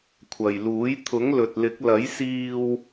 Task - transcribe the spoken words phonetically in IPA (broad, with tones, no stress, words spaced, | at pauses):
kʷʰɐ˨jluː˨˥j t̪ʰʊ˨˥ŋlɵ˨t̚lɪ˨˥k̚ lɐ˨˥jsiː˧w